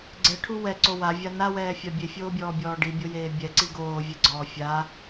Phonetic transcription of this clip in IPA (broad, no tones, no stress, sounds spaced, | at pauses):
ɡ͡ǀ ɛ ʈʰ u w ɛ ǀ o w a vʲ a n a w ɛː fʲ a bʲ e fʲ oː bʲ ɔː bʲ ɔː ɖ i bʲ o j eː bʲ ɛ ǀ i ɡ oː vʲ ɛ ɡ͡ǀ ɔː fʲ a